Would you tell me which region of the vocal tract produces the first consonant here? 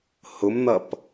throat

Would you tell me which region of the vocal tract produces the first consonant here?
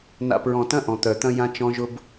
tongue tip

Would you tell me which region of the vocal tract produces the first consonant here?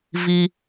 lips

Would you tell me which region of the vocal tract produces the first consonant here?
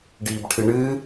retroflex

